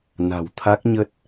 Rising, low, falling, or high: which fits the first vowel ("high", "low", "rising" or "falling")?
low